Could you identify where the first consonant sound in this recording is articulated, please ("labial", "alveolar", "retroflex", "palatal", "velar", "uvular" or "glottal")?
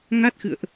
velar